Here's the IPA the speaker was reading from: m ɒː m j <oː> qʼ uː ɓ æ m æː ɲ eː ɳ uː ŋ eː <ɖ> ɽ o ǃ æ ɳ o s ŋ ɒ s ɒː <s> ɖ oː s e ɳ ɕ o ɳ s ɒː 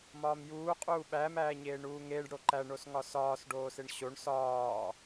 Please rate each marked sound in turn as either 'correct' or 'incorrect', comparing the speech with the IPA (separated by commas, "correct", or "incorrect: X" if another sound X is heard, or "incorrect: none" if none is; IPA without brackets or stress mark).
incorrect: uː, correct, correct